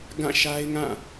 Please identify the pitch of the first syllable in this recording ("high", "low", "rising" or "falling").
falling